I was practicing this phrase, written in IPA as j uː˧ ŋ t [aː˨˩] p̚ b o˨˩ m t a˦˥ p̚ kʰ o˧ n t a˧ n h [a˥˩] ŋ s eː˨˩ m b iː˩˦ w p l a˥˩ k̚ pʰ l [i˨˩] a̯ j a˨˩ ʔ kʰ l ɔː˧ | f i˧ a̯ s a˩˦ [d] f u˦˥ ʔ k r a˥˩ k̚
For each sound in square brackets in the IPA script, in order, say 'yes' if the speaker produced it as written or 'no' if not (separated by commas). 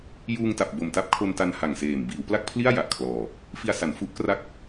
no, no, no, no